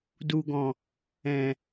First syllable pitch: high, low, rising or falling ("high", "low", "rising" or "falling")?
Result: low